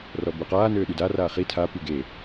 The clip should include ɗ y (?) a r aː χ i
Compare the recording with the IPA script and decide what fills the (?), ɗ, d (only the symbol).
d